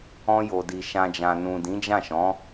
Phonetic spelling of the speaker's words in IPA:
ɔ̃˧jo˨di˨ ʃã˨d͡ʒã˨nũ˨ dĩ˨˦d͡ʒã˦˨ʃɔ̃˨˦

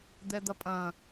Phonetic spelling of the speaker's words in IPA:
d̪ɛd̪ɐpʼɐ̃

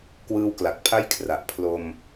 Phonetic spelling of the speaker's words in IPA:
kwɯː˦˥wkla˨˩k̚pʰa˥˩j kʰra˨˩ʔ pʰlo˧m

